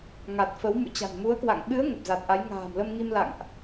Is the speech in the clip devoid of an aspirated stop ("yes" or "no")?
yes